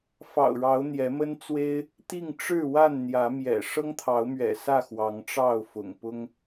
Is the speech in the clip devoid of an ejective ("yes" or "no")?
yes